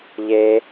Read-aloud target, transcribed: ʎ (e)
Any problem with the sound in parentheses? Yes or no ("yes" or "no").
no